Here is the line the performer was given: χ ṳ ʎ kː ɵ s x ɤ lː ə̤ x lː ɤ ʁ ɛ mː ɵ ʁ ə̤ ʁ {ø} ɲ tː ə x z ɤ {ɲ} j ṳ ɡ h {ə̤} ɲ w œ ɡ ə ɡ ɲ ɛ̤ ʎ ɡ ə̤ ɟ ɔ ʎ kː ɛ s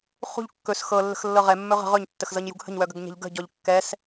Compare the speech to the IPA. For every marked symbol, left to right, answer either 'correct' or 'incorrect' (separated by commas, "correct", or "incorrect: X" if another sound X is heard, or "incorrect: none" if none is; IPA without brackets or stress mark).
incorrect: ɵ, correct, correct